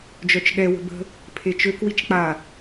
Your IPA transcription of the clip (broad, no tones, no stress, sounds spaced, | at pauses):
d͡ʒ œ t͡ʃ ɠ ɛ w ə̤ b ə̤ | pʰ e t͡ʃ ø k w i t͡ʃ k͡p a